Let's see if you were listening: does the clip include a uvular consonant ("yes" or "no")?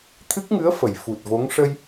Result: no